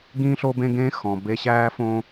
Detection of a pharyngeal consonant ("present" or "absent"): absent